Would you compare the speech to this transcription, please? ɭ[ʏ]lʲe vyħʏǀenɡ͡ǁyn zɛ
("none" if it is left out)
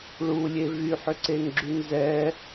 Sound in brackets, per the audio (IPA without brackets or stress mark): u